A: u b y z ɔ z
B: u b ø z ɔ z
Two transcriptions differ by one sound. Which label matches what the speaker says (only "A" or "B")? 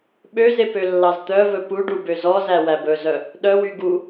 B